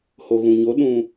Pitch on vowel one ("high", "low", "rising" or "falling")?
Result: low